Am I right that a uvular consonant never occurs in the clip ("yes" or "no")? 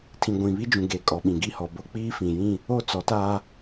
yes